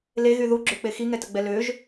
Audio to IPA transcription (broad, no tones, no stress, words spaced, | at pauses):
leɣy ðuɡ͡ǁøk͡pe xiŋɛtəɡ͡bɛ løʒ